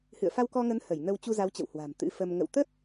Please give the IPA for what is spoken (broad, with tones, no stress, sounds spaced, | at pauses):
h ɨ̰˧˨ ə̯ f a˧ w k ɔ˧ ŋ ə˨˦ n h ə˧˩ j n ə˧ w t͡ɕ u˧ z a˨˦ w t͡ɕ ə̰˧˨ w h w a̤˨˩ m t̪ ɨ̰˧˥ f ə˧ m ŋ ə̰˧˨ w t̪ ə˦˥ t̚